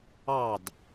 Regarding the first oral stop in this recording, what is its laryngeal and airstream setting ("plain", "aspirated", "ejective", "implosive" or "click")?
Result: plain